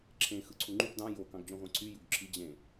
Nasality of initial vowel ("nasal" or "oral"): nasal